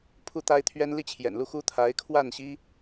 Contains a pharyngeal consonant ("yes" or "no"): no